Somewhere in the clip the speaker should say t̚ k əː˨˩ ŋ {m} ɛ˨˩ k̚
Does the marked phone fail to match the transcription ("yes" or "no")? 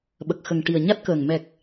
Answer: no